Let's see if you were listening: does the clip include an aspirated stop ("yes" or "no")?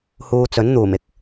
no